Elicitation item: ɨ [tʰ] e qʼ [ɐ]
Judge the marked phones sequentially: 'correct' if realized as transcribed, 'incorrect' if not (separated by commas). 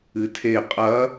correct, correct